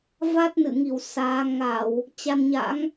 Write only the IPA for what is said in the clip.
v a˦˥ t̚ n ɨ̰˧˨ ŋ i˧˩ w s aː˨˦ ŋ a˧˩˨ w | t͡ɕ a˧ n ɲ a̰˧˥ ŋ

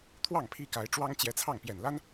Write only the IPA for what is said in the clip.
t̪ʰ w ɑ˥˩ ŋ pʰ i˥ k a˧˥ ɪ̯ ʈ͡ʂ w ɑ˥ ŋ t͡ɕ j ɛ˧˥ t͡sʰ ɑ˥˩ ŋ p j ɛ˨˩ n l a˥ n

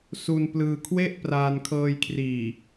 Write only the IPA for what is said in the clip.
s u˧ n p l ɯː˧ kʰ w e˥˩ ʔ p r aː˧ n kʰ ɤː˧ j kʰ r iː˨˩

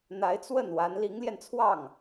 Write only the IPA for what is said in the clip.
n̪ a˧˥ ɪ̯ t͡s w ə˥˩ n w a˧˥ n l i˧˥ ŋ l j ɛ˧ n t͡sʰ w ɑ˥˩ ŋ

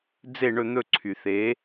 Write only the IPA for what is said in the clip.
d͡z e˦˨ ɳ ɵ˦˨ n̪ ɵ˦˨ ǀʰ y˩ θ e˨˥

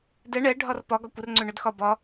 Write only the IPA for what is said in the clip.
d ɛ ɳ ɛ ɖʱ ɒ r p ɒ ɡ ɒ kʷ ə r ŋ͡ǀ ø ɳ ø d x ɒ b ɒ

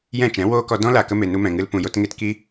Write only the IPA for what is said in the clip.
j ɛ̃˦˨ t͡ʃ ɛ̃˨˦ w oː˦ k ɔ˧ d ɔ̃˦ l a˨ k ə˧ m e˨ n u˧ m ɛ̃˨ ŋ ɨ˧ l p ũ˨ j o˧ t ŋ e˧ t k i˦

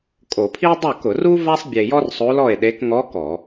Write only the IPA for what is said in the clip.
kʼ o˧˩˧ pʰ i˥ e̯ dˤ o˥˨ k ʊ˧˩˧ r u˥ v a˥ sˤ bʲ e˧ j ɔ˥ r sˤ o˧˥ l ɔ˥˨ e̯ ɗ e˧˥ k ŋ ɔ˧˥ k ɔ˧˩˧

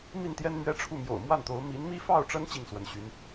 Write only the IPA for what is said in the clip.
m i˥˩ n t̪ j ɛ˥ n m ɥ ɛ˥ ʈ͡ʂʰ u˥˩ m j o̰˨˩ ʊ̯ m w a˥˩ n t̪ o˧˥ ʊ̯ m i˧˥ n m i˥ f ɑ˥˩ ʊ̯ ʈ͡ʂ ə˥ n t͡ɕ i˥˩ ŋ s w ə˧˥ n ɕ y˧˥ n

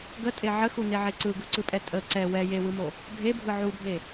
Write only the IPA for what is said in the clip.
ɡ ə tʼ e ʕ ə x u n e ʕ e ǀ ɯ ɡ ɯ ǀ ɯ pʼ ɛ tʼ ə ǀ ɛ w ɛ j e w ɯ m o | bʱ e bʱ ɯ ʕ u bʱ e

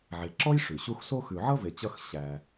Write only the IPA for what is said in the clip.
ʕ e˨ ǁ ɔ˥ j ʂ ʉ˩ ɕ u˦ x s o˥ x ʉ˨ ʕ ʌ˥ v e˨ t͡ɕ ʌ˥ x ɕ æ˨

